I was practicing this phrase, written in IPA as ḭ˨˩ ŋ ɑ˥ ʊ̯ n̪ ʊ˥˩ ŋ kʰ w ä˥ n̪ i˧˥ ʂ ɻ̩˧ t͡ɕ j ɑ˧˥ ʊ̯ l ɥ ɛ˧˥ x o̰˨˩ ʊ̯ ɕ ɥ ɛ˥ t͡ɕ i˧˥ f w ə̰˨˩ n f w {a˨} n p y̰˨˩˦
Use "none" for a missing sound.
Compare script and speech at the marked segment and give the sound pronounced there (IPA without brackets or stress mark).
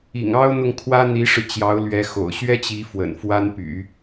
a˥